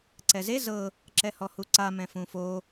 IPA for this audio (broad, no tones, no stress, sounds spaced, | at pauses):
ǀ ɛ z e z ɤ | ǁ ɛ h ɔ h u ǀ a m ɛ̃ f ũ f o